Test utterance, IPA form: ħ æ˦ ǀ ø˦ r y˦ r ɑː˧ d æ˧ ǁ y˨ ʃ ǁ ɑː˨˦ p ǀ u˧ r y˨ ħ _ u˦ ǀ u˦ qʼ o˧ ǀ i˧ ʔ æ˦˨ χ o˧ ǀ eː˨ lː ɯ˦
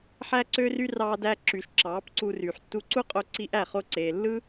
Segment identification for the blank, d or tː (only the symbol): tː